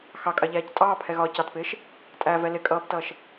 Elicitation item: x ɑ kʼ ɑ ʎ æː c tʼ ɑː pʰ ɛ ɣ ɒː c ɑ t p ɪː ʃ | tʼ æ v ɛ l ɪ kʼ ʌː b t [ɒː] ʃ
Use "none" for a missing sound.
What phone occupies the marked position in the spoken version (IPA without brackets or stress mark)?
ʌː